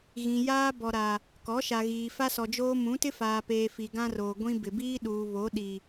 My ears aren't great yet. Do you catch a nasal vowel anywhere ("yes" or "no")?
yes